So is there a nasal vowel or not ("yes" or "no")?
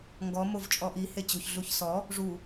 no